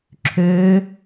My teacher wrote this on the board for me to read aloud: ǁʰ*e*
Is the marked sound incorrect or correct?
incorrect